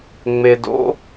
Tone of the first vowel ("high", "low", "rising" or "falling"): low